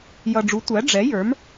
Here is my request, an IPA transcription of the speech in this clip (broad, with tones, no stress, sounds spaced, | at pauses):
j ʌ˨ ɖ͡ʐ u˩˥ tʷ æ˩˥ ɖ͡ʐ ɛ˩˥ j ə˞˩˥ m